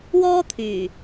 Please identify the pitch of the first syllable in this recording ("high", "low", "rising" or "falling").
high